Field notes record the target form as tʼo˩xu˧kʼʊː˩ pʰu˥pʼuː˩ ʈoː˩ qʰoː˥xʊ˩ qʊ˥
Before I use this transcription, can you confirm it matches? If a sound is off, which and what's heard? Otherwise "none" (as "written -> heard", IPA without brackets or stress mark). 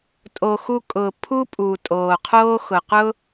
ʈ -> tʼ